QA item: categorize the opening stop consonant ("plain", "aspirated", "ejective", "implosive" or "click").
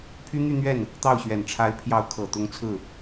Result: aspirated